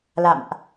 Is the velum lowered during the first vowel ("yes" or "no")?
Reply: no